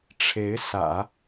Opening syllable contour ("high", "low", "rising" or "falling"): rising